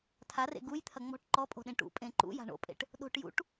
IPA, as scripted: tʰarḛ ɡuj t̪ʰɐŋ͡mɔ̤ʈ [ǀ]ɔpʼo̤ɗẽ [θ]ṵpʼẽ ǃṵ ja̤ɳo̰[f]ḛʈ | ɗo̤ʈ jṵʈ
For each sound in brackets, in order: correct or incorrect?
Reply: incorrect: ǃ, incorrect: ʈ, incorrect: pʼ

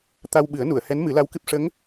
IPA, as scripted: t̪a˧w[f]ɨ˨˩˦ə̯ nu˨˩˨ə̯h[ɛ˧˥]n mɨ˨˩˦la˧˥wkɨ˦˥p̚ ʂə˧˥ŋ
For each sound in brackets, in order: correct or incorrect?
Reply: incorrect: ɓ, correct

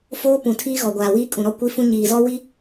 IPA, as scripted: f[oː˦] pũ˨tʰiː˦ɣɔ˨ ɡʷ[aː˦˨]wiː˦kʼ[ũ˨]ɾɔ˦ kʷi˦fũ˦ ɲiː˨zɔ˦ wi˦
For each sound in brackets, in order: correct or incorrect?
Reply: correct, incorrect: aː˨, correct

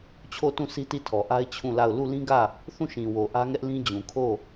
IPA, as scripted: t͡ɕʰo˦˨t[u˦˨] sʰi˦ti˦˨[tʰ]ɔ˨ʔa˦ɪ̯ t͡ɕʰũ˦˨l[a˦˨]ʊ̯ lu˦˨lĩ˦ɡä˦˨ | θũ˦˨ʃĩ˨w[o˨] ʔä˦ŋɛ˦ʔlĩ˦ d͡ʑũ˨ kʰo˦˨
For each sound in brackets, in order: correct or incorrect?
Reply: incorrect: ũ˦˨, correct, correct, correct

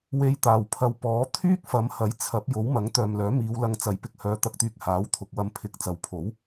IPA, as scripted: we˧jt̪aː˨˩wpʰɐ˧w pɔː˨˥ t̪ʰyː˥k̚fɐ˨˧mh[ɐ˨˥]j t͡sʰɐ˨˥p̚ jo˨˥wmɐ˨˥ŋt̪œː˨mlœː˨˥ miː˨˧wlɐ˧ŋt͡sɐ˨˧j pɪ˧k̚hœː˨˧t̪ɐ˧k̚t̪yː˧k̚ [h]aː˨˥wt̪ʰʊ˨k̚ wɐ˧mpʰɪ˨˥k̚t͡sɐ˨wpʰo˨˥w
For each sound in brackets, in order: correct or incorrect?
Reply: correct, correct

